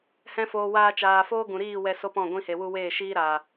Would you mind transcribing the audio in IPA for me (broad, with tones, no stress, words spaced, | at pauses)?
hɛ̃˧foː˨waː˧t͡ʃaː˨ foː˦ɡũ˨ɾiː˦˨ wɛ˧so˦pɔ̃˦˨ ɡʷĩ˧he˨wu˧ weː˦˨ʃiː˦ ɾaː˨